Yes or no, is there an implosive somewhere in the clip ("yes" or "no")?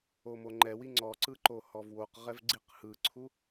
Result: no